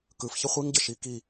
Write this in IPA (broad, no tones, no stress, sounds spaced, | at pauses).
k ɯ f ç ə χʷ i ŋ ɟ ə ʃ i k i